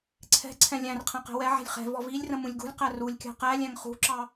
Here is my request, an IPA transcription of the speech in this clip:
ǀʰ ɛ̤ ǀʰ ɛ̃ lʲ æ̃ r qʰ ɛ̃ q ɛ̤ w ɛ ʕ æ̤ lʲ χ ɛ̤ v ɔ v i lʲ r ə̃ m ũ lʲ ɡ ṳ lʲ q æ r u lʲ kʲ ɑ̤ q æ lʲ æ̃ ŋ χ ṳ ǁ ɑ

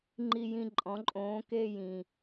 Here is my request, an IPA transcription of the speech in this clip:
ŋ͡ǃ i˨˩ j ĩ˨˩ ǃʼ ɔ̃˩˧ ǃʼ õː˩˥ k e˥˧ j ĩ˨˩

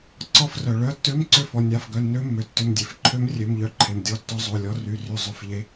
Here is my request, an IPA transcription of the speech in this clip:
ǀ ɔ˧˩ f r œ˩ ɭ œ˩˧˩ tː ø˧˥ m ǀ ʏ˧˩ f ɔ˩ nʲ a˩˧˩ f ɡ œ˩˧˩ nː ø˧˥ mː ø˩ tː ʏ˩˧˩ m dʲ e˩ f ǃʰ ø˧˥ m rʲ ø˩˧˩ m ʎ œ˧˩ ǃʰ e˩ m dʲ ɔ˧˩ tː ɔ˧˥ zˤ o˩˧˩ lʲ ɔ˧˥ r y˩˧˩ r y˧˩ zˤ ʏ˧˥ f ʎ e˧˥

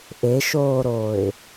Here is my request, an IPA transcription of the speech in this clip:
ʔ e ʃ oː ɾ oː ɪ̯

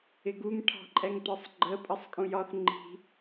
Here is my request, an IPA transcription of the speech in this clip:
ɪ ɡ u ŋ ʈʰ ɑ̤ ǃʼ ɛ ŋ t ɒ sˤ ɡ͡ǃ ə pʼ ʌ sˤ kʼ ũ j ɒ θ ŋ͡ǃ i̤

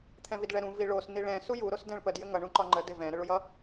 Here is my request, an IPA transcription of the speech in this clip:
t̪ʰ ɛ̃ v i d ɭ ɛ ɾ ũ v i ɭ o s n̪ i ɭ ɛ̃ s u j u ɾ o s d ɛ̃ ɭ p ə d j ɘ ŋ ʌ ɳ ũ ǃ ɒ ŋ͡ǃ ə d e v ɛ̃ ɾ ə ɭ u j ʌ

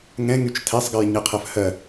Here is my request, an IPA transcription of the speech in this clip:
ŋ ɛ̃ ŋ y t͡ʃ tʰ ɛ sˤ ɡ ɜ j ɲ ɛ qʰ ɜ f h ɜ

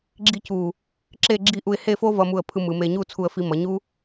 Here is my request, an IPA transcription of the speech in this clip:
ɡ͡ǁ i˥ c u˧˩ | ǁ e˥˧ ɡ͡ǁ i˥˧ ʔ u˧ ɪ̯ h e˥˧ f o˥ v ʌ˧ m u˧˩ ə̯ pʰ ɯ˧ m ɯ˩˧ m e˧ ɲ u˥˧ t͡sʰ u˧ ə̯ f i˧ m ʌ˩˧ ɲ u˥

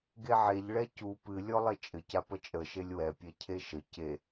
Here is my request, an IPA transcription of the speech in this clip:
ɡ e ʕ e ʎ ɭ ɛ c u p ɨ lʲ ɔ lˠ e t͡ʃʼ ɘ c a p ə t͡ʃʼ ə ʃ e lʲ w ɛ pʲ ɛ cʰ e ʃ ə c e

